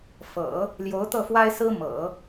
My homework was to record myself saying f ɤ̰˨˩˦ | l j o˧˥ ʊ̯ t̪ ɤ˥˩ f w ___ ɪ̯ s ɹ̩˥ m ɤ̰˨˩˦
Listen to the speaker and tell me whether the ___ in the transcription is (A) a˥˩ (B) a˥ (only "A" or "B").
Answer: B